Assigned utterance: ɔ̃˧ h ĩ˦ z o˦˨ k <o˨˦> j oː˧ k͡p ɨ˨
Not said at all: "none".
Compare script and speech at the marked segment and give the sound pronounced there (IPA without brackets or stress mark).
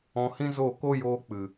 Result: o˦